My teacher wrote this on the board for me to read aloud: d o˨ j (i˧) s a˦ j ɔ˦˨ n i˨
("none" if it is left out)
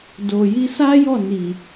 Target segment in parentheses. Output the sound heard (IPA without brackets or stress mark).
i˧